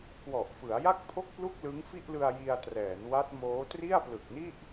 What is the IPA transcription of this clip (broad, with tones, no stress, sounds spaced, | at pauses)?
k w ɔ˨˩ ʔ f ɯ˩˦ a̯ j a˥˩ k̚ pʰ o˥˩ k̚ p l u˥˩ k̚ l ɯ˦˥ ŋ f i˥˩ ʔ l ɯ˧ a̯ j i˧ a̯ t r ɛː˩˦ n w a˦˥ t̚ m oː˦˥ t r i˥˩ a̯ p l ɯ˨˩ k̚ n i˥˩ ʔ